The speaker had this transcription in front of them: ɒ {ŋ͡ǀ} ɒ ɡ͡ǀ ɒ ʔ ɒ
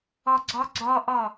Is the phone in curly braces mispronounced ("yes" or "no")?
yes